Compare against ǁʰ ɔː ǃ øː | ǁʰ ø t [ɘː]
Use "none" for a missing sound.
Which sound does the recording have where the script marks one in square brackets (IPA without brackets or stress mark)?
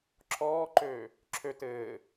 ɘː